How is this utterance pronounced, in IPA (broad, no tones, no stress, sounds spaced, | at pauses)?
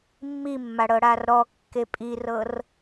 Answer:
mː i mː a ɽ ɤ ɽ a r ɾ ɔ kː e pʼ i r ɤ r